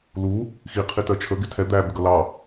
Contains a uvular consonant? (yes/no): yes